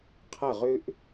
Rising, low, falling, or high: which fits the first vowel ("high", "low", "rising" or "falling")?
falling